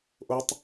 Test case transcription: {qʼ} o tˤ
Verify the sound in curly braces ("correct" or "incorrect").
incorrect